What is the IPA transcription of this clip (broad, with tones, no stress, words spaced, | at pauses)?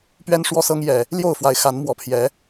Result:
pɥɛ˦nʂwɔ˦ sɤ˦ŋjɛ˨˩ | ljo˥˨ʊ̯fwa˨˦ɪ̯xa˨˦nmwɔ˨˩ pʰjɛ˨˦